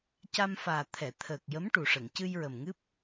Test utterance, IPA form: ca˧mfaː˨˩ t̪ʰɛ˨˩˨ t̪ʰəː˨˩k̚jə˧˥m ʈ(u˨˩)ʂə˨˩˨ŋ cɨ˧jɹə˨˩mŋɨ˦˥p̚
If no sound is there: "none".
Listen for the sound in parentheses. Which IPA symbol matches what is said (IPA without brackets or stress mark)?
u˨˩